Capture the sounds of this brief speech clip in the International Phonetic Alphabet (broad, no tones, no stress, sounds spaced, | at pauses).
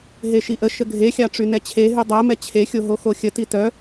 ɦ e ʃ i ʔ ə ʃ ə ɡʱ e xʲ ɑ ʈ͡ʂ y n ɛ t͡ɕʰ e ɦ y dˤ ɜ m ɛ t͡ɕʰ e xʲ o ɦ o x o xʲ ə t i t œ